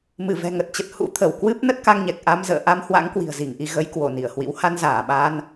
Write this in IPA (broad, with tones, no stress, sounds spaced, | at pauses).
m ɨ˧˩ v ɛ̤˨˩ ŋ ə˨˩ t̚ t͡ɕ ə˨˩ t̚ h ṵ˧˥ t̪ʰ ə˧˩ w k w ɨ˦˥ p̚ n ə˦˥ t̚ k a˧ ŋ ɲ ɛ˨˩ k̚ ʔ a˧ m z ə̰ː˧˨ ʔ a˧ m h w a̰˧˥ ŋ k w i̤˨˩ ə̯ z i˧˩ ŋ ʔ i˧ ɣ ə˨˦ j k w o˧˩ n i˧˩ ə̯ h w ḭ˧˥ w h a˧ n z aː˧˩ ɓ aː˧ n